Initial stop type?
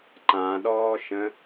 click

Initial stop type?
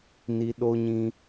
implosive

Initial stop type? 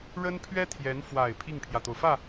aspirated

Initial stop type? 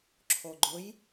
click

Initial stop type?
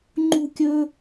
click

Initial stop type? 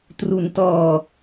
plain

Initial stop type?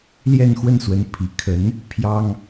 aspirated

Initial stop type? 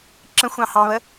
click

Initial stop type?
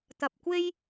plain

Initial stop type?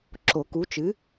click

